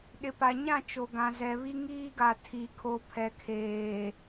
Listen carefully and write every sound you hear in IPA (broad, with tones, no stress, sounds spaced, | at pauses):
ɗ ɪ˨ p a˨ ɲ ã˦˨ t͡ʃ o˨ ɡ ã˨ z ɛ˨ β i˦ ŋ iː˦ ɡ a˨ tʰ i˨ kʰ o˨ pʰ ɛ˨ kʰ eː˨